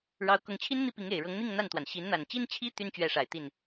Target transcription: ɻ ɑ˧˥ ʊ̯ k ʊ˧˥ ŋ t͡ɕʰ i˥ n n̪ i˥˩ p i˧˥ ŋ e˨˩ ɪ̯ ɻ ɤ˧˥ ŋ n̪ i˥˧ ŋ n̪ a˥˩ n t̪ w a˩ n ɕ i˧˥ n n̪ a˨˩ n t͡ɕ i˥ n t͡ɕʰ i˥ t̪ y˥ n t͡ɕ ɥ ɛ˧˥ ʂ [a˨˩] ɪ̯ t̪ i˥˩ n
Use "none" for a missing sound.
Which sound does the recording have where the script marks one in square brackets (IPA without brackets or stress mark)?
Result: a˨˩